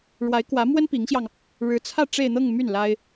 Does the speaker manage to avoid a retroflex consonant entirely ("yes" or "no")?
no